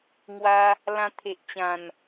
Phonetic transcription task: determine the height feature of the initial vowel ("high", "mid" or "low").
low